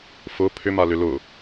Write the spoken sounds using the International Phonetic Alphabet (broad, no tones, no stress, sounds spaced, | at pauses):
f ʊ pʰ ʏ m a l ʏ l ʊ